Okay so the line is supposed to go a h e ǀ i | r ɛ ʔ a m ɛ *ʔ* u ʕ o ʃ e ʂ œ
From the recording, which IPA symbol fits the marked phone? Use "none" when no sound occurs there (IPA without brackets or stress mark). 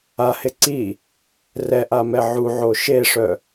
ʕ